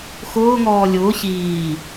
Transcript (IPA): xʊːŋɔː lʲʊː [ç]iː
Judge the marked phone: correct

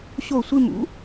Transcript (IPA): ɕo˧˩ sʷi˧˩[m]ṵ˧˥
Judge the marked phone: correct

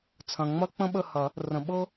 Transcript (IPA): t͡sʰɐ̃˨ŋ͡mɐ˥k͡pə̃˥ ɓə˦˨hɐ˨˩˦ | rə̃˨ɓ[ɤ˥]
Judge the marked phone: correct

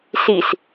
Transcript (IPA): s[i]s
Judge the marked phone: correct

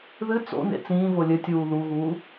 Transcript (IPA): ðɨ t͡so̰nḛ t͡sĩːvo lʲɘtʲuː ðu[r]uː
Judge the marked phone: incorrect: ɣ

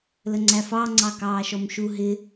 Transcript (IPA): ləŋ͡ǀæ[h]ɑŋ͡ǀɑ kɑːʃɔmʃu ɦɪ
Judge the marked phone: incorrect: f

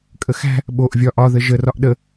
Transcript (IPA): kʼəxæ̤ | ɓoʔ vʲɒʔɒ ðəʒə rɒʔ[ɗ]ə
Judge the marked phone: correct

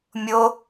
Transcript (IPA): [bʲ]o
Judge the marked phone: incorrect: mʲ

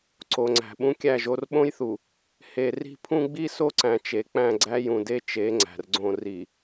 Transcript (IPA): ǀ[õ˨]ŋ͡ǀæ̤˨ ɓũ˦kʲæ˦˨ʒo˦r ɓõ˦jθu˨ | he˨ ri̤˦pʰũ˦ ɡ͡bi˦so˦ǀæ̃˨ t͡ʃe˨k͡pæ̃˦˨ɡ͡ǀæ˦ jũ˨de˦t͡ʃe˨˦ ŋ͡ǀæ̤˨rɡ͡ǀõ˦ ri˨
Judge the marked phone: incorrect: o˨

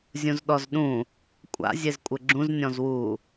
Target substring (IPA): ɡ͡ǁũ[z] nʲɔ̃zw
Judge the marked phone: correct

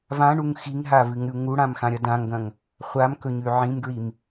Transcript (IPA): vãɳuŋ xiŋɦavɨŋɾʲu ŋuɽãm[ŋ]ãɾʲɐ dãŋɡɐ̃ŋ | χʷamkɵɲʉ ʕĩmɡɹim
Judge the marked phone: incorrect: x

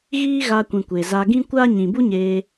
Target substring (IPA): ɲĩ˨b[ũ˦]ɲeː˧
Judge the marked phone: incorrect: u˦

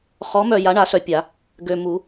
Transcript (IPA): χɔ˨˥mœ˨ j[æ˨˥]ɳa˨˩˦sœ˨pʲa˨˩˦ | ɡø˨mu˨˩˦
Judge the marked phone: incorrect: a˨˥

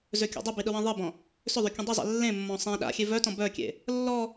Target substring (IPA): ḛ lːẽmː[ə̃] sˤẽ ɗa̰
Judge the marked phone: incorrect: ɔ̃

